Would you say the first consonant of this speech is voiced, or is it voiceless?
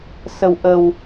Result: voiceless